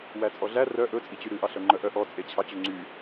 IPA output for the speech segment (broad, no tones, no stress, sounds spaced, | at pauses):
w æ t͡sʼ ɔ ɮ æ r œ ʔ ɵ t͡sʼ i t͡ɕ y ɾ ʉ ʔ ɑ ɬ œ ŋ͡ǃ œ ʔ œ ʔ ɔ t͡sʼ e t͡ɕʰ ɑ t͡ɕ o ŋ͡ǀ y